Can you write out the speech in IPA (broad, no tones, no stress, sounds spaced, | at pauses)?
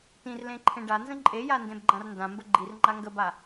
t ĩ r l ẽ ǃʰ ẽ ɖ a n z ə̃ ǃʼ e j a n d ẽ b ɡ͡ǃ ã r n d ã m b ə ɡ͡ǃ i r ŋ͡ǃ a ŋ ɡ ə b a